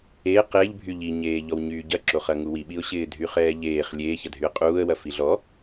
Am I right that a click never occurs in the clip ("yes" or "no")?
no